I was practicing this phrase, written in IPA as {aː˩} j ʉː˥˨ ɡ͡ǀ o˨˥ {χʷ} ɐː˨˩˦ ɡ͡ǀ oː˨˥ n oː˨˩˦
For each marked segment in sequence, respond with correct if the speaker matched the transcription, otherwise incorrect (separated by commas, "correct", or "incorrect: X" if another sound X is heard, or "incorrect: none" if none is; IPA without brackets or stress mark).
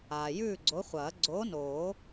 correct, correct